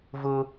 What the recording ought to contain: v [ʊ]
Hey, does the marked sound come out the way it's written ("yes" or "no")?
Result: yes